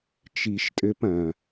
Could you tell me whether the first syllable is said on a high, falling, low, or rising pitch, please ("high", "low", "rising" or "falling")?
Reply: low